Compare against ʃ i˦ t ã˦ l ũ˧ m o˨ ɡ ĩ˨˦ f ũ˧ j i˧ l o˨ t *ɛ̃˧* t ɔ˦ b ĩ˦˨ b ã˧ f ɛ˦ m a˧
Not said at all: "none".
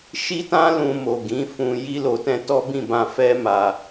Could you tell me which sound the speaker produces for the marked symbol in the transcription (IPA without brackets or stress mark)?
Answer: ɛ̃˧